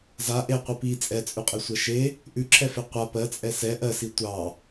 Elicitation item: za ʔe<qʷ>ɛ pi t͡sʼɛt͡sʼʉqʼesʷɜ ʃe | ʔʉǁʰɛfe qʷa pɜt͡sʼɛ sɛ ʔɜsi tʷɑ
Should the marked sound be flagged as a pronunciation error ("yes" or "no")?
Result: no